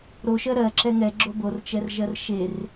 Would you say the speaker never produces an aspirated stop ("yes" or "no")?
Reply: yes